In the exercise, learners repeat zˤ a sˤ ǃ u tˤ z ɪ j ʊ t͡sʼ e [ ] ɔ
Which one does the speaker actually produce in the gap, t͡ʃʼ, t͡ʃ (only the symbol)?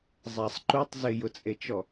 t͡ʃ